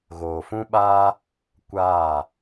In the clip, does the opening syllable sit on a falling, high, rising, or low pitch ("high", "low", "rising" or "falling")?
low